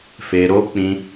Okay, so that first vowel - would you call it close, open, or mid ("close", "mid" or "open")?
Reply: mid